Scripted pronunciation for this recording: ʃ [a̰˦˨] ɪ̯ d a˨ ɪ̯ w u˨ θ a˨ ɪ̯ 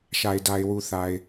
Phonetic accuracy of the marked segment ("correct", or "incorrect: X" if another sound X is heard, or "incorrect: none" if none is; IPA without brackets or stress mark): incorrect: a˨